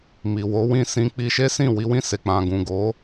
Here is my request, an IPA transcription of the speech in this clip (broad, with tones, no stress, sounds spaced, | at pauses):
m i˨ w o˨˦ w ĩ˦˨ s ĩ˧ k͡p i˧ ʃ e˦ s ĩ˦˨ w i˧ w ĩ˧ s e˨ k͡p ã˨ ɡ ũ˨ ɡ o˨˦